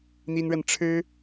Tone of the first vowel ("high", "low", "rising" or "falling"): high